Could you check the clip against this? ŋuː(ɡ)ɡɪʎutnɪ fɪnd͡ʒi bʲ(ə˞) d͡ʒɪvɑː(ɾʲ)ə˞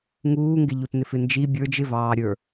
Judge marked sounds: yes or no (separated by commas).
no, yes, yes